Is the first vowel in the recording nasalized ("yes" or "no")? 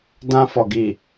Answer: yes